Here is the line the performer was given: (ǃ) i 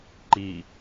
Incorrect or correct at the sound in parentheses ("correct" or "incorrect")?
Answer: correct